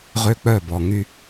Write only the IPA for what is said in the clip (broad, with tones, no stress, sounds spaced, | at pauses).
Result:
ʁ ø˦ k͡p œ˦˨ b ɔ˨ ŋ y˦